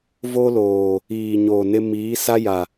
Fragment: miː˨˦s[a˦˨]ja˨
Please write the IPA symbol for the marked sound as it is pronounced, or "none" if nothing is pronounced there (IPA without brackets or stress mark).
a˦